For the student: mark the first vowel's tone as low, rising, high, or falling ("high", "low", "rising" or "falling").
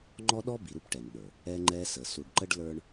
high